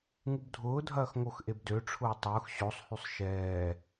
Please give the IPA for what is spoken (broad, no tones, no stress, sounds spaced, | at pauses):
ŋ u b dʱ ʊː dʱ ɐː x ŋ o x ʔ e b d ø ʈ͡ʂʰ ʊː tˤ ʊː x ɕ o sˤ h y sˤ ʃ ɛː